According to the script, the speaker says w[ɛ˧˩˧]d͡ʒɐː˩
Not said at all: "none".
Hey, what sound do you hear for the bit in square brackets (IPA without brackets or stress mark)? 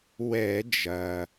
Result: ɛ˧˩˧